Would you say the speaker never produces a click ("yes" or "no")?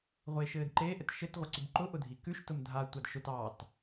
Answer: no